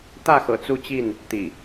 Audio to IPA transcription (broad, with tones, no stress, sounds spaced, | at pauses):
t̪ ä˥˨ x ɤ̰˨˩ t͡s u˥˨ t͡ɕ i˥˨ n | t̪ ḭ˨˩